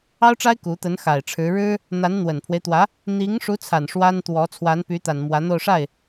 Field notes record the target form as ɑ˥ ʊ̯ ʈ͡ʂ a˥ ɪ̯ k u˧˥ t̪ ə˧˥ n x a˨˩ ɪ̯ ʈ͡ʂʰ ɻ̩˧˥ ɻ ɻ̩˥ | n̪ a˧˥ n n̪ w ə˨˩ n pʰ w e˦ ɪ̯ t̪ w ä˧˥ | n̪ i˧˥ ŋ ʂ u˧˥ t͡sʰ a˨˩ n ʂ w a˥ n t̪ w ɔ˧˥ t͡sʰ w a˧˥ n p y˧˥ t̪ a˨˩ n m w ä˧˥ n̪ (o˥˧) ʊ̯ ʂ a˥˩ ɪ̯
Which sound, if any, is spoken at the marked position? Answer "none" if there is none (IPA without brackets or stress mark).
o˥˧